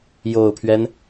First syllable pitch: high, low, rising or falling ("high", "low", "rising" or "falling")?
low